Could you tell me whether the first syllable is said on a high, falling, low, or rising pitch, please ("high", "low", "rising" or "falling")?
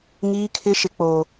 high